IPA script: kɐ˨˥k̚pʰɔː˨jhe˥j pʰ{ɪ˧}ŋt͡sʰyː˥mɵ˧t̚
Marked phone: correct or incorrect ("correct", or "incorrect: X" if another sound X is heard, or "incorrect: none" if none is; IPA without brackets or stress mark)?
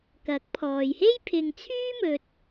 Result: correct